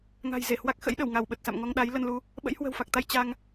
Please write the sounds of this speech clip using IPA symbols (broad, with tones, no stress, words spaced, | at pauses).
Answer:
ŋa̤˨˩j ze˧˩hwa˦˥k̚xə̰˧˥j ɗə˧˩wŋa˧˩wɓə˨˩t̚sa̰˧˨m ŋɔ˧ŋɗa˨˦j lə˧nlu˧ | ɓə̰˧˥jhwə̤˨˩wfa˨˩k̚t̪a˧j t͡ɕa˧ŋ